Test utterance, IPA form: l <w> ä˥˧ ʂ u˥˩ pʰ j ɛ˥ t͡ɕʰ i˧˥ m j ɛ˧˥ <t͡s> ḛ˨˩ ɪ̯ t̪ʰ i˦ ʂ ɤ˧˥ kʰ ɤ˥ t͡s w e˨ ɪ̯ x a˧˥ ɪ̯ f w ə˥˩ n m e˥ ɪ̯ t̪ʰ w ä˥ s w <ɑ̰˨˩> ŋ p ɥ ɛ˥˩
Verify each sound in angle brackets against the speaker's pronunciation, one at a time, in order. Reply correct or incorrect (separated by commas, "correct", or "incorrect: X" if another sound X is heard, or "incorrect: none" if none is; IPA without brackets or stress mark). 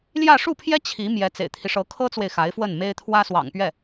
incorrect: j, correct, correct